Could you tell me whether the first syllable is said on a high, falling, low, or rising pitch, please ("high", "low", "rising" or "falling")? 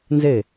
falling